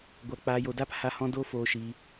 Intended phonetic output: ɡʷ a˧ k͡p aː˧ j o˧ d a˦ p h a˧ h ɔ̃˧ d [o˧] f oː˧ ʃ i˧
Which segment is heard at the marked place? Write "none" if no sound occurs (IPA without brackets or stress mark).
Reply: o˦